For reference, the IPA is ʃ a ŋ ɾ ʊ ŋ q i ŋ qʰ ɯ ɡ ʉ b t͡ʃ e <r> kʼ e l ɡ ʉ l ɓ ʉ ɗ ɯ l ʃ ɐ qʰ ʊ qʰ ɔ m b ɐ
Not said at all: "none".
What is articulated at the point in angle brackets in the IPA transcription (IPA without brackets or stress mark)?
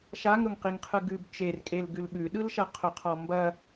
r